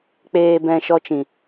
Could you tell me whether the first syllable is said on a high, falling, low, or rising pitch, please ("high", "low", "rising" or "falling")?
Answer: low